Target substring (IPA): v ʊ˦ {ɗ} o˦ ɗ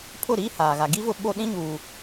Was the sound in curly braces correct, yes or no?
no